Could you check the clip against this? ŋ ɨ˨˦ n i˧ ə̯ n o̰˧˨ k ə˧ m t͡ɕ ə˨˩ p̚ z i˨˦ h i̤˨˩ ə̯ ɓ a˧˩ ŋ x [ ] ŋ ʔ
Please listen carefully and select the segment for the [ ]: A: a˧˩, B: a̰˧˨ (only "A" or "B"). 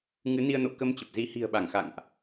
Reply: B